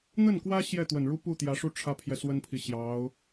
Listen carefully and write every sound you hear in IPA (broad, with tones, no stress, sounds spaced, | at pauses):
n̪ ə˥˩ n k w ä˥ ɕ j ɛ˥˩ t̪ w ə˨˩ n ɻ u˥ p u˥˩ t̪ j ä˧˥ ʂ u˥˩ ʈ͡ʂʰ ä˥ pʰ j ɛ˨ s w ə˥ n pʰ i˨ ɕ j ɑ˧˥ ʊ̯